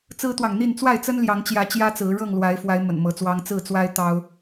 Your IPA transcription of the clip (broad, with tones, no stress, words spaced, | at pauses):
t͡sɹ̩˦t̪wɑ˨ŋn̪i˥˨n t͡swa˥˨ɪ̯t͡sə˦nljɑ˨˦ŋt͡ɕjä˨˦ t͡ɕjä˦t͡sɹ̩˨˦ ɻɤ˥˨ŋlwa˨˦ɪ̯fwa˨˦ɪ̯ mə̰˨˩nmɤ˨˦ t͡swɑ˦ŋ t͡sɹ̩˥˨t͡swa˦ɪ̯ t̪ɑ˦ʊ̯